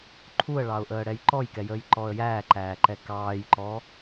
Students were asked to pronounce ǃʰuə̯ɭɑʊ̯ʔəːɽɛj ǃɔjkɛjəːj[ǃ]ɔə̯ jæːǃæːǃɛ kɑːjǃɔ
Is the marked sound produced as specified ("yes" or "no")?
yes